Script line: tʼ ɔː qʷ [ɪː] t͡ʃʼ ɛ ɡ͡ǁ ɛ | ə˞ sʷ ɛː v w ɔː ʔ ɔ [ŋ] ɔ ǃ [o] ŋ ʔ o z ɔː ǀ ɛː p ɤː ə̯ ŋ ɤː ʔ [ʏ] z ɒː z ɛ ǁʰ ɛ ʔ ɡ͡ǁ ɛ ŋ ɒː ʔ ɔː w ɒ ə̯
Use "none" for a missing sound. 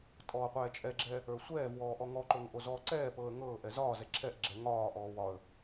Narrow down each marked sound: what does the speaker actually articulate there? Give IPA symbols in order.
ɛː, ŋ, o, ɛ

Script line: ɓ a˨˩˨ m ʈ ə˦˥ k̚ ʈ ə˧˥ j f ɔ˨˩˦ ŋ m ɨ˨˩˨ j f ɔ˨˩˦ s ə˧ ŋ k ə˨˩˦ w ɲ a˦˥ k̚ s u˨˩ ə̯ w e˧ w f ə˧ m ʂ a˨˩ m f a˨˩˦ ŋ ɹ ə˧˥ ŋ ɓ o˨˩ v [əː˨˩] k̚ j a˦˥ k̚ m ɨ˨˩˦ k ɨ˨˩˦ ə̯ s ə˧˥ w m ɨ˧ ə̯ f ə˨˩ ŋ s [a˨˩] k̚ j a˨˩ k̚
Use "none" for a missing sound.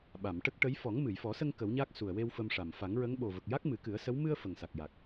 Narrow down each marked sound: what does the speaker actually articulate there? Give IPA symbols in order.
ə˨˩, a˨˩

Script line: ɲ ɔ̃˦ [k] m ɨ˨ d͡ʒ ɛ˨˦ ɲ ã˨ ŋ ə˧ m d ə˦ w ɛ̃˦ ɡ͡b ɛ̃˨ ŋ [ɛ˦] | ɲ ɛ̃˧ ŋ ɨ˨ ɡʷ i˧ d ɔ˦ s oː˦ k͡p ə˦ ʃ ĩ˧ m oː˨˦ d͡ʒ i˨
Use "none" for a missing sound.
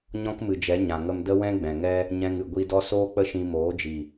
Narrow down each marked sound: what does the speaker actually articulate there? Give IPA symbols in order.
k, ɛ˦

